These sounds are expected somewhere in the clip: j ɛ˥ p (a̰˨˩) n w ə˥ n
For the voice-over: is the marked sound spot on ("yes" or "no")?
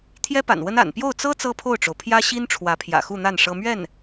yes